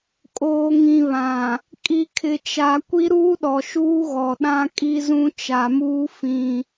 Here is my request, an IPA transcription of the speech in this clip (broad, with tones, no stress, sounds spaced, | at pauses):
kʼ oː˨ ŋ ĩ˨ β ã˨ | kʼ i˨ kʰ ɪ˨ t͡ʃ a˨ kʷ i˦ ɾ uː˦ ɗ ɔ˨ ʃ uː˦ ɣ ɔ˨ ɗ ã˦ kʼ i˦ z ũ˦ t͡ʃ a˨ m uː˦ f ĩ˦